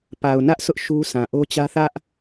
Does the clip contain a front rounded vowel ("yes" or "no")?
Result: no